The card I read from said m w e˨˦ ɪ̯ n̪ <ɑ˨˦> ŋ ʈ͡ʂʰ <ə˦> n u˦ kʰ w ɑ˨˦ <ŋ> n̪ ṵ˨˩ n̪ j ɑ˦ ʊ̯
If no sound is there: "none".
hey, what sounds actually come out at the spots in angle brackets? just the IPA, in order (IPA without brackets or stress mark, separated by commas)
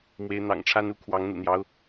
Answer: ɑ̰˨˩, a˦, ŋ